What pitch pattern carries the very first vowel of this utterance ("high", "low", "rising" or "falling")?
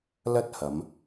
high